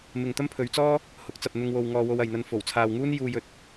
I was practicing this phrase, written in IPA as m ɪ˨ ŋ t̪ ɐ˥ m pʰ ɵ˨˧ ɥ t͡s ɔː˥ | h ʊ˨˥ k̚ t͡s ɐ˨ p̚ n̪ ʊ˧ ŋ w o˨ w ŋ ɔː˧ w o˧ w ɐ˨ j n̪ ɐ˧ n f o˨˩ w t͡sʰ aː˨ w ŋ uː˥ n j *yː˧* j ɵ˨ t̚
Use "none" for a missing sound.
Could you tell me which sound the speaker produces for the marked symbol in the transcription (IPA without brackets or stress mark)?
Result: uː˧